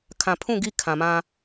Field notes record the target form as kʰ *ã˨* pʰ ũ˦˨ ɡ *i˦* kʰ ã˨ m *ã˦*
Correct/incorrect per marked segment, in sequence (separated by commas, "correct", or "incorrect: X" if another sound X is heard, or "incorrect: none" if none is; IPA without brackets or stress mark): correct, correct, correct